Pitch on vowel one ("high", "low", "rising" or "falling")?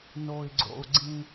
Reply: low